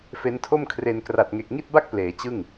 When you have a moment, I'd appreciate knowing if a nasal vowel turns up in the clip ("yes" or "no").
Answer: no